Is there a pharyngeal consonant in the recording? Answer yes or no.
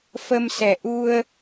no